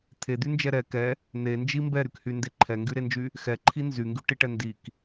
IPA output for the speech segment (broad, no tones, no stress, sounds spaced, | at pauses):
t̪ʰ e d̪ y n d͡ʒ ɛ ɾ ɛ k ɛ | n̪ e n d͡ʒ i m b ɛ ɾ y k h y n d e ǃʰ ɛ ŋ ɡ y ɾ e n d͡ʒ y | x ɛ ǃʰ i n z y ŋ ɡ y ʈ i ʈ ɛ n d i k